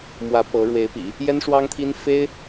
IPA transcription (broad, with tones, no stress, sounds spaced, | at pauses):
m w ä˧˥ p ɤ˧˥ ɻ w e˧˥ ɪ̯ p ḭ˨˩˦ | j ɛ˥ n ʂ w ɑ˥ ŋ t̪ʰ i˥ n f e˥ ɪ̯